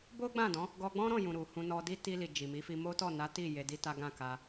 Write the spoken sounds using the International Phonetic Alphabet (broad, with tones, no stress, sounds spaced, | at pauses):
b o˦ ɡ͡b ã˦˨ d ɔ̃˨˦ | ɡ ɔ˧ ɡ͡b ɔ̃˦ ɾ ɔ̃˦˨ j ũ˨ ɾ u˨ h ũ˧ n ɔ˧ d i˦ t i˧ l i˨ d͡ʒ i˨ m i˨˦ f i˧ m o˦ t ɔ˦˨ n a˨˦ t i˦˨ j e˧ d i˦ t a˦ ɡ ã˦˨ k a˧